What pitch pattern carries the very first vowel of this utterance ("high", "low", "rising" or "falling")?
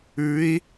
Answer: rising